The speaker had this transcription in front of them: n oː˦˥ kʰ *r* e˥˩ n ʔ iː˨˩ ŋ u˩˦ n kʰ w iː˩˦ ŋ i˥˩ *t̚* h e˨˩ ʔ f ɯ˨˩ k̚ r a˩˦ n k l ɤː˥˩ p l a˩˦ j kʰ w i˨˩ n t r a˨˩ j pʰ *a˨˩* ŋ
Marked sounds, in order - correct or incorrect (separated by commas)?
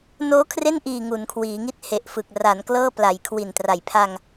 correct, correct, incorrect